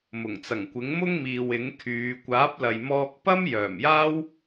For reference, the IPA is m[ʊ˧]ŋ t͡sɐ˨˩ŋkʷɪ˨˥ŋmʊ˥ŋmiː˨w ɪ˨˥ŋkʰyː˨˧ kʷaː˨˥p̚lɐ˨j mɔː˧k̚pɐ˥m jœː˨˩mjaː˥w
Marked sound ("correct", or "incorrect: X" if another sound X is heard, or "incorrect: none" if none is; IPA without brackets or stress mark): incorrect: ʊ˨˩